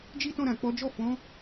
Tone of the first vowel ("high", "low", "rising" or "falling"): high